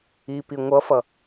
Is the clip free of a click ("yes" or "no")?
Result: yes